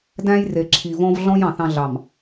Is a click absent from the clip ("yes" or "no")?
no